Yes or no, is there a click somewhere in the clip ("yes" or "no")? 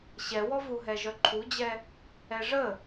yes